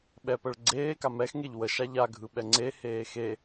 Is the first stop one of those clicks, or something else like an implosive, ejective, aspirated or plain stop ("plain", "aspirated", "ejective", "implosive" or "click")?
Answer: implosive